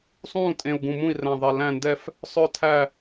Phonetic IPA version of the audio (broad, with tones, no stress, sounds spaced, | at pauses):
sˤ ũː˦˨ tʼ ẽ˨˩ u̯ ɡ ũ˨˩ m ũ˦˨ i̯ r æ̃˨˩ ðˤ ɛ˨˩ l æ̃˦˨ n d ɛ˦˨ f | sˤ œ˦˨ tʰ æ˦˨